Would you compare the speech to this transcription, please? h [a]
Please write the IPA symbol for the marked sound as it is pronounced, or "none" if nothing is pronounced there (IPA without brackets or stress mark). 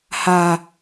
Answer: a